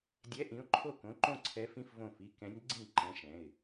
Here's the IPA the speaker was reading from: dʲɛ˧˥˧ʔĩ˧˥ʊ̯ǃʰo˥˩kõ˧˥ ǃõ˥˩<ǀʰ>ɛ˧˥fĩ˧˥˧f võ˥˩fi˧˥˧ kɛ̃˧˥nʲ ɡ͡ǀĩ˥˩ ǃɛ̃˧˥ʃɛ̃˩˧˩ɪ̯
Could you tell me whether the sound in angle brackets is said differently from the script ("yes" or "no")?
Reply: no